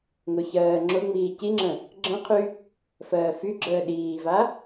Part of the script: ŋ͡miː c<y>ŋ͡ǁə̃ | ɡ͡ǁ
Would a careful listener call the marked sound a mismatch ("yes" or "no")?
yes